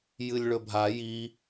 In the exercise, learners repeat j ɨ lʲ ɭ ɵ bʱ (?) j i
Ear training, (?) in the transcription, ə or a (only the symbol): a